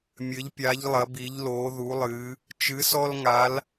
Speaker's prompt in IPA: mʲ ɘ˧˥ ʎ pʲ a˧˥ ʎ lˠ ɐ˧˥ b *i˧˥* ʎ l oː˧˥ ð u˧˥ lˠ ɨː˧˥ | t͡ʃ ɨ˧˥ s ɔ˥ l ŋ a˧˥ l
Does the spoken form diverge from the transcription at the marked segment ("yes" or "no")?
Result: no